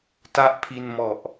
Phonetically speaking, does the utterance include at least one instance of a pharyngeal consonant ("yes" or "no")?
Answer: no